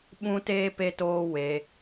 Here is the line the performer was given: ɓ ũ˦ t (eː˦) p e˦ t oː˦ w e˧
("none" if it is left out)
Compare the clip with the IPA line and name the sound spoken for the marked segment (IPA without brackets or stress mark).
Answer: eː˦